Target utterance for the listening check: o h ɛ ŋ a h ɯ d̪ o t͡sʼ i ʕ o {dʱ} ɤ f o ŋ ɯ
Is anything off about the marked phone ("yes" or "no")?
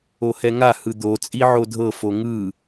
no